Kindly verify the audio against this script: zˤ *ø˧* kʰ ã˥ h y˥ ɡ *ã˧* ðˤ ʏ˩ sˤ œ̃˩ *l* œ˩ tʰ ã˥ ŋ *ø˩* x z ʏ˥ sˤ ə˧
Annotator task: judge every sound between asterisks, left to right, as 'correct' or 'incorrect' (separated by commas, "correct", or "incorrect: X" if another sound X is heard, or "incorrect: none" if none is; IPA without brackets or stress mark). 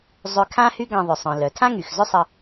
correct, correct, correct, incorrect: y˩